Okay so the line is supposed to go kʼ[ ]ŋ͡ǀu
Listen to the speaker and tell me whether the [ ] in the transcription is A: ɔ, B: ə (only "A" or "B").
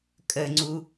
B